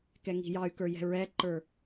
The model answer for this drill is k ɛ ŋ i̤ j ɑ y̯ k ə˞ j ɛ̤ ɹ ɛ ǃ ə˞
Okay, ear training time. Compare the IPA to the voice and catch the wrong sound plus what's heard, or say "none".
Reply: none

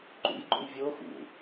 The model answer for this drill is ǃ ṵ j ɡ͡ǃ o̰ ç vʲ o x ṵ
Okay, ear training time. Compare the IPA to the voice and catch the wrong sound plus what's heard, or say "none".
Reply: ç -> j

